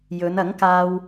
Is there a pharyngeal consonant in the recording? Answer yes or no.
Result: no